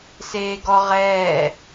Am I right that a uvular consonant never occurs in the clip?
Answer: no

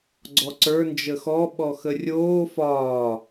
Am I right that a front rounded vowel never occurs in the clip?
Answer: yes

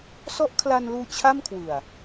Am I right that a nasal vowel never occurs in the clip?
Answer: yes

